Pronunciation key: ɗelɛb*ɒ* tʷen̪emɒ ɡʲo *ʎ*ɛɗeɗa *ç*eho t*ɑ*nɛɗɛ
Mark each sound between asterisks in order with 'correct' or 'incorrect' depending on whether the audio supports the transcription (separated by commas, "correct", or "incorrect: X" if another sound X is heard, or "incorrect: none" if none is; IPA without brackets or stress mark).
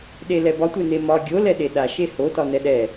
correct, incorrect: l, incorrect: ʃ, incorrect: ɒ